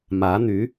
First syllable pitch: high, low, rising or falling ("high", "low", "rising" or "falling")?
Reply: rising